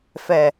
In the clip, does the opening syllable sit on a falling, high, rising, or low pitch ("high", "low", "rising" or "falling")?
low